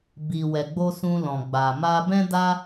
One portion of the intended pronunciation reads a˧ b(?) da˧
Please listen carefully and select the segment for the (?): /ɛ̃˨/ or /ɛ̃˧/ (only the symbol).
ɛ̃˧